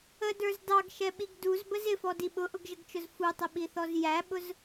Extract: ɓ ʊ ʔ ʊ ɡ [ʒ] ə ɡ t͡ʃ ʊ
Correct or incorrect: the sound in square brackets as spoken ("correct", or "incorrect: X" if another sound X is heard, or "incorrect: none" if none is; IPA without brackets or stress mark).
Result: correct